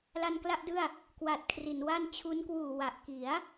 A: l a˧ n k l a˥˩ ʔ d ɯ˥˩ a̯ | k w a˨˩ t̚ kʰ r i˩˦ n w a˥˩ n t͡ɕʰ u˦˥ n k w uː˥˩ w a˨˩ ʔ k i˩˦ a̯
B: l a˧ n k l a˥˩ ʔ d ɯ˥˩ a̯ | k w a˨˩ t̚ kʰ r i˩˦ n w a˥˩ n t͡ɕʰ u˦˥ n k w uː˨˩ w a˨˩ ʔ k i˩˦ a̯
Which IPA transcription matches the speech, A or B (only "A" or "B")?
B